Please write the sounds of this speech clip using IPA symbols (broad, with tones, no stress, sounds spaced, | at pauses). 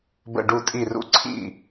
b ə̰˧˩ ɖ u˧˩ tʼ i˧˩ r ṵ˧˩ ǀʰ ḭ˥˩